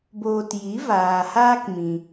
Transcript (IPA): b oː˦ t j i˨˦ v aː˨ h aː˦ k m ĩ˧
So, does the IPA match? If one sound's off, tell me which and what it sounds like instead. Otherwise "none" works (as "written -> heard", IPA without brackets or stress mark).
none